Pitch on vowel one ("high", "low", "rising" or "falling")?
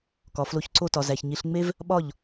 low